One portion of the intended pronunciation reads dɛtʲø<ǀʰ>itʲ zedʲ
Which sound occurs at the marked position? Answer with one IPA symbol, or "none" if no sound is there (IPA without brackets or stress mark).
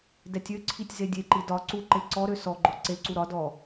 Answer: ǀʰ